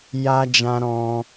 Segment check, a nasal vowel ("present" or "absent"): present